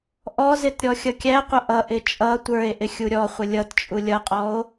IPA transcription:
ʔ ɔ z ɪ t ɾʲ ɔ xʲ ʌ kʲ æ qʷ ʌ ʔ ʌ ʔ ɪ t͡ʃʼ ʌ tʷ ə˞ e̯ ʔ ɪ xʲ u ɾʲ ɔ χʷ ə lʲ ʌ t t͡ʃʼ u lʲ ʌ qʼ ɔ o̯

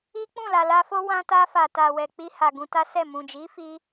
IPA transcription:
i˦ k͡p ũ˦˨ l a˨ l a˧ f o˦ w ã˧ t a˧ f a˨ t a˨ w ɛ˨ k͡p i˧ h a˨ ɡ ũ˧ t a˦ s ɛ˦˨ m ũ˨ d͡ʒ i˨˦ f i˧

